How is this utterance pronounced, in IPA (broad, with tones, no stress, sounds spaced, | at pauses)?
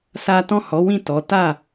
s a˦ t ɔ̃˦˨ h ɔ˨˦ w ĩ˦˨ t ɔ˨˦ t a˦˨